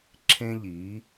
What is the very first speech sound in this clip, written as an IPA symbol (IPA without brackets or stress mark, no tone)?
ǁʰ